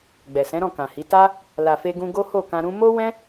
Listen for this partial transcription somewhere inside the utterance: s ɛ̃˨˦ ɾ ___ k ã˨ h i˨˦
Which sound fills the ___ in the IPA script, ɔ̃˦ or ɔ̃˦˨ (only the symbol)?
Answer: ɔ̃˦˨